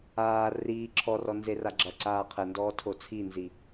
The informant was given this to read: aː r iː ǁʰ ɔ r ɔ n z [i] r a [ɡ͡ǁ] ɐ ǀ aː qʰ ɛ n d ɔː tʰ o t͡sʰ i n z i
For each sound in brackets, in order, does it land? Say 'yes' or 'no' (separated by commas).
no, yes